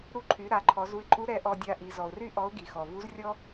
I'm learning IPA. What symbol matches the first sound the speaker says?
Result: ɾ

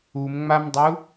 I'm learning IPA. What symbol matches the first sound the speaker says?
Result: u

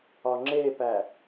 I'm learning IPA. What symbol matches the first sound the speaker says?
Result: ɒ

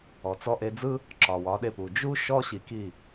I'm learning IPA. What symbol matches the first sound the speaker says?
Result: ɔ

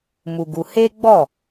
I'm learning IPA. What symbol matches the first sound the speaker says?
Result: m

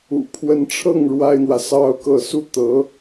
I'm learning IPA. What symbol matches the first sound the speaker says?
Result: ṵ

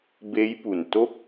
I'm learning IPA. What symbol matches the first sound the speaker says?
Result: b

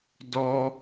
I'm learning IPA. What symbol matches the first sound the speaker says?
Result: d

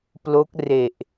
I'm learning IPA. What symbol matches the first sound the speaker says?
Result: p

